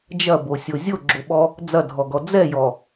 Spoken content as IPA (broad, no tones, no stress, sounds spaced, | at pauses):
d͡ʒ ɐ b o sʲ o zʲ o ɡ͡ǁ o ɓ ɔ | d͡z ɐ dʱ ɔ ɡ ɔ d͡z ɛ j ɔ